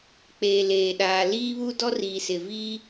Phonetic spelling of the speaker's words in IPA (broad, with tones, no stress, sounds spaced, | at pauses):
k͡p eː˨ l eː˨ ɗ aː˨ l iː˦ β u˦ d ɔ˦ r iː˨ s ɪ˨ v iː˦